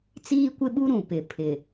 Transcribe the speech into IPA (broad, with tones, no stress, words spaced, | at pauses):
t͡siː˦kʷɪ˦ɓu˦ ɾũ˨pɪ˨˦ pʰɪ˨